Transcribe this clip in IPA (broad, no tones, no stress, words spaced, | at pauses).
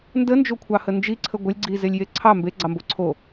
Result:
ndənd͡ʒokʷʰɑhə nd͡ʒiǀʰə ɡʷəlʲ ɡ͡ǀizelʲje ǀʰɑ mbeɡ͡ǀɑmbo ǀʰo